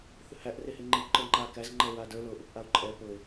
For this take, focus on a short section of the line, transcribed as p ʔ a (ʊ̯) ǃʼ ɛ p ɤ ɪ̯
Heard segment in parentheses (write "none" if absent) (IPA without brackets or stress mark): ʊ̯